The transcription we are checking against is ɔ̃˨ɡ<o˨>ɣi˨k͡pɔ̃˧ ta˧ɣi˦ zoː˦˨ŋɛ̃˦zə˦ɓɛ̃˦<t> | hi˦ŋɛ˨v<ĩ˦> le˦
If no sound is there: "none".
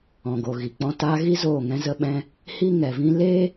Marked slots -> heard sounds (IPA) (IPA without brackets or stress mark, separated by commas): o˨, none, ĩ˦